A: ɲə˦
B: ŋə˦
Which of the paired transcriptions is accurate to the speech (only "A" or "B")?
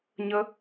A